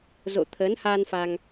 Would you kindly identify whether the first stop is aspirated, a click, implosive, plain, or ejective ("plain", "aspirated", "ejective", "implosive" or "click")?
aspirated